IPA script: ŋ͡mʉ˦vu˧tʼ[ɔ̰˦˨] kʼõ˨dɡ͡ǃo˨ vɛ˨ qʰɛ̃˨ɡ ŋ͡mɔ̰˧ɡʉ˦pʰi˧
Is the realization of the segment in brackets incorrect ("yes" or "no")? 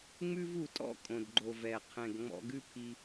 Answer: no